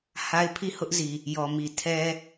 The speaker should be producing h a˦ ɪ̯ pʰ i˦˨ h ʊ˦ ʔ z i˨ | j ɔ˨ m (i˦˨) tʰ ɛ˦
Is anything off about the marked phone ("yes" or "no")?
yes